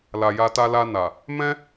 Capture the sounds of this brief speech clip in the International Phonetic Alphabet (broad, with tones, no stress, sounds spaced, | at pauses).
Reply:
l a˨ j a˧ t a˧ l a˧ n a˨ | m ɛ̃˦